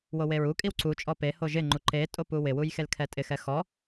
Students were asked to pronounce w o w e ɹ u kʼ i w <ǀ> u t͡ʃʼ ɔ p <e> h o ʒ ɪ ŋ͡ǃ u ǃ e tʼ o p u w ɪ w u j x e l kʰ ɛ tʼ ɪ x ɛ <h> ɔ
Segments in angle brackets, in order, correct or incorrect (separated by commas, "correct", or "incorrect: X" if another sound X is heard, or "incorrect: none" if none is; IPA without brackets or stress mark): correct, correct, incorrect: x